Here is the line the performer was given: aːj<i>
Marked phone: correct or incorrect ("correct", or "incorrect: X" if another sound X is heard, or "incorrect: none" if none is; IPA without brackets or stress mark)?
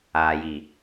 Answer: incorrect: iː